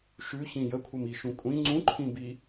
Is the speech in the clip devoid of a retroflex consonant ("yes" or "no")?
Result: yes